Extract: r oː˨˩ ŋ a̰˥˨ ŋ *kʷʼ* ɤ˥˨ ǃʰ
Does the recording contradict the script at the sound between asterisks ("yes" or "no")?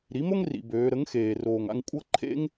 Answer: no